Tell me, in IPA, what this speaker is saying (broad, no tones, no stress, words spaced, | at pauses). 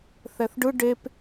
θɛθɖɯ ɖep